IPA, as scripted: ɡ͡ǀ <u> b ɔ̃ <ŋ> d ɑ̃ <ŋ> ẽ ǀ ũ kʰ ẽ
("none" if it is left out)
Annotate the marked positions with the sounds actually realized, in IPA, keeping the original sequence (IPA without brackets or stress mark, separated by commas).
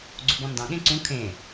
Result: u, n, ɠ